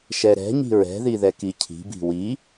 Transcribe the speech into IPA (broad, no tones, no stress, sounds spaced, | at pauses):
ʃ ɛ ɾ ɛ̤ ɲ i̤ ɹ ɛ̤ ð i ð ɛ k i cʰ i̤ b i̤ w i